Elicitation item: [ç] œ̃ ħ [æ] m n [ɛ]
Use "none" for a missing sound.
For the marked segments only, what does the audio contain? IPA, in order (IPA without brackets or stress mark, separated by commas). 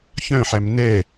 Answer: ç, æ, ɛ